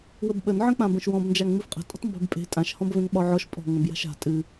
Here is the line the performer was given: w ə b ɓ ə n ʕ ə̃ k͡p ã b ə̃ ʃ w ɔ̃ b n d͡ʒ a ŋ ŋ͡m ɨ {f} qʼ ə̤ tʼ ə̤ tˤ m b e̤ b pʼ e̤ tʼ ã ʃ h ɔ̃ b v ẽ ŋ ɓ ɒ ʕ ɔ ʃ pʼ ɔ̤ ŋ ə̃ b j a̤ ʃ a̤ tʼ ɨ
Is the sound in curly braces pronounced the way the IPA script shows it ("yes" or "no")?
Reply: yes